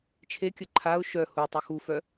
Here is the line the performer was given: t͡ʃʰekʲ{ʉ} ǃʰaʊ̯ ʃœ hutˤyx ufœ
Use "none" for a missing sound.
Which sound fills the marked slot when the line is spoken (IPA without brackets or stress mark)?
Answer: ə